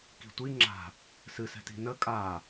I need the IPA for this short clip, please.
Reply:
k i̤ tʷ i ŋ͡ǁ a̤ | s ɨ s ɛ̤ t i̤ n ə kʼ a

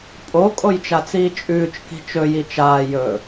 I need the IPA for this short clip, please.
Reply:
pʼ o kʼ o j t͡ʃ a t͡s iː t͡ʃʼ ʉː t͡ʃ k i̤ t͡ʃ ɵ j i t͡ʃ aː j ɵ

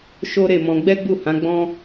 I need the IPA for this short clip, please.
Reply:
ʃ o˦ ɾ e˦˨ m ɔ̃˧ ɡ͡b ɛ˦ ɡ͡b u˦˨ h ã˨˦ ɡ͡b ɔ̃˦

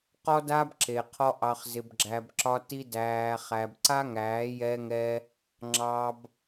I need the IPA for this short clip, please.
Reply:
q ɔ˦ d a˦ b ǁ e˨ qʰ ɔ˦ ʔ ɑ˧ χ z ɪ˧ b ɡ͡ǁ æ˧ b ǁ ɒ˦ t i˦ d æː˧ χ æ˧ b ǀ a˦ ŋ æː˨˦ j ɛ˧ ŋ ɛ˧ | ŋ͡ǁ ɑ˧ b

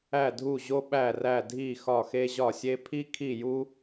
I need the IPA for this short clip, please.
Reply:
æ˥˨ dʱ u˥˨ ʑ o˥ ɓ æ˥˨ r æ˥˨ dʱ i˥˨ x ɒ˥˨ x e˥ ʑ ɒ˥˨ sʲ e˥ pʰ i˥ kʰ i˥˨ j u˥

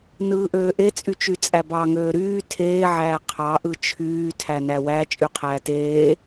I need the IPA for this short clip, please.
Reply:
n ɯː ʔ øː ʔ e t͡sʼ y t͡ʃ y t͡sʼ æ b ɑ ŋ øː ɾ yː tʰ eː ʕ æː qʰ ɑ ʔ ɯ t͡ʃʰ yː tʰ æ n æ w æ t͡ʃʼ y qʰ æː t eː

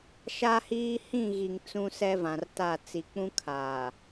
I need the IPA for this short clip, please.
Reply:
ʃ a˦ h iː˦ h ĩ˦˨ ɣ i˨ ŋ t͡s ũ˦ s ɛ˦ v ã˨ r t a˦˨ t͡s i˨ k͡p ũ˦ kʰ aː˨

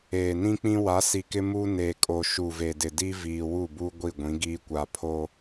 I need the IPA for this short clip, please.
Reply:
eː˨ n ĩ˦ k͡p ĩ˦ w a˨˦ s i˨ k ɪ˦ m u˦ n e˨ kʼ o˨ ʃ u˨ v e˨ d ɪ˨ d i˦ v iː˨ w u˦˨ b u˦ ɡʷ i˦˨ ɡʷ ĩ˨˦ ɡ iː˦ kʷ a˦ pʰ o˦

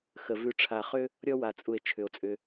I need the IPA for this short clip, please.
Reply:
x ə˩ v ʉ˨ ʈ͡ʂʰ a˨ χ ʏ˦ | ɾʲ ɔ˦ w a˩ t͡sʼ u˩ e̯ t͡ʃʰ ʏ˩ o̯ t͡sʼ ʏ˨

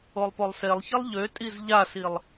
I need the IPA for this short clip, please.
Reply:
o lˠ p o lˠ s e lˠ ç i lˠ ʎ ø tʼ i z ʎ a s i lˠ

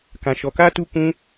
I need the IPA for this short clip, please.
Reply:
k ã˧ ʃ ɔ˧ k aː˦ t u˦ k ũ˦

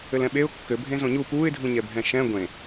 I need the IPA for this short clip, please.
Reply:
ɘ l ɛ̃ ɓ e ʊ̯ kː ɘ bʱ ẽ z õ ɲ u p uː ɪ̯ dʱ ũ ɲ ɛ bʱ ɛ̃ ʃ ɛ̃ ɡʷ ẽ

